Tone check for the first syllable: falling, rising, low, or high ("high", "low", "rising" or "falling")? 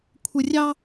low